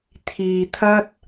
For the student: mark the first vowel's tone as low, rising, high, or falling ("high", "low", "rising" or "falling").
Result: low